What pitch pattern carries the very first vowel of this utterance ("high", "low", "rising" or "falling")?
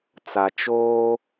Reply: low